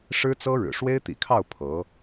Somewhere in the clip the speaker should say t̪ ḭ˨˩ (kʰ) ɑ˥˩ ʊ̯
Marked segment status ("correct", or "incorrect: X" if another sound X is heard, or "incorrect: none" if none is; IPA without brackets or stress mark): correct